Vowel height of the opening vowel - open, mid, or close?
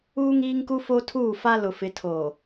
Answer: close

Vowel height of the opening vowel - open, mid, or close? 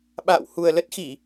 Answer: open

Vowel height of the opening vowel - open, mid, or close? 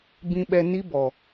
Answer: close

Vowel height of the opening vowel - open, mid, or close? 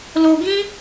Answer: mid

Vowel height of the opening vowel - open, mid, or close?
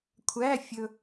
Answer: open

